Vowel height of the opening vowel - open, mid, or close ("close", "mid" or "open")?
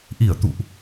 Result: close